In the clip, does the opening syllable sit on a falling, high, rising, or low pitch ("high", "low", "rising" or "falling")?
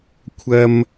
high